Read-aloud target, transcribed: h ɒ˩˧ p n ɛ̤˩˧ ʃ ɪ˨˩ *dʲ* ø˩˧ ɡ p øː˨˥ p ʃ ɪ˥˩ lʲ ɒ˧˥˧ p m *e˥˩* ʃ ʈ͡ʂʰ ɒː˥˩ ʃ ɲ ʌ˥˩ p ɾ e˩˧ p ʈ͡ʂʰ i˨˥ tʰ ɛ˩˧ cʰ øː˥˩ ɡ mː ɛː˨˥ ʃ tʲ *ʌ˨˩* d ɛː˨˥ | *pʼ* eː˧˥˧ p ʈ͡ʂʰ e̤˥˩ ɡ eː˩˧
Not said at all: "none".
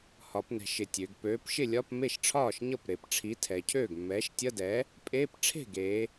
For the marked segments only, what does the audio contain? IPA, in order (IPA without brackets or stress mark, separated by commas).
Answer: tʲ, e˥˩, ʌ˧˥˧, pʼ